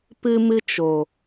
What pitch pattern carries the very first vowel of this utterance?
high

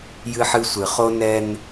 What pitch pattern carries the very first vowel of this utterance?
high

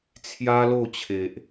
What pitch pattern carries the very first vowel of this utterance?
high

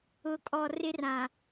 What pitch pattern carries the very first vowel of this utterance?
low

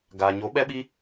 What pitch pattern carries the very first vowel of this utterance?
low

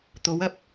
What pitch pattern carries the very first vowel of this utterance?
rising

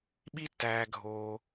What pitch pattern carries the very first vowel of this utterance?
high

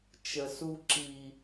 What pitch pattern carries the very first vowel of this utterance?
low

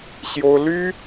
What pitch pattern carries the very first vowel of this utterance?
high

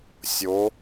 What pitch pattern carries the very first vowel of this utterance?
rising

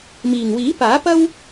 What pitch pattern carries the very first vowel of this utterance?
low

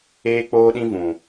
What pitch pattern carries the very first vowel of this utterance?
high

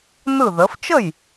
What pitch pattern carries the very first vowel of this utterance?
falling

